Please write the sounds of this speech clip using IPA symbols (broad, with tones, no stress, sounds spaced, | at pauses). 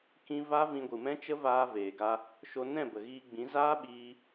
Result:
k ĩ˦ v a˦ v ĩ˧ ɡʷ ɨ˨ m ɛ̃˦ t͡ʃ ə˦ v aː˧ v eː˨ ɡ a˧ | ʃ o˧ n ɛ̃˦˨ b ə˨ ɣ iː˧ ɡ͡b ĩ˨˦ z aː˦ ɓ iː˧